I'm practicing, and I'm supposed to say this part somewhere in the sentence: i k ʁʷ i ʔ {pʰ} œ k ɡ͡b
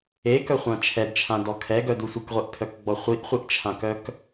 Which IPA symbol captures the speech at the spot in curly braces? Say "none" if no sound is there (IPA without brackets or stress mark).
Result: pʰ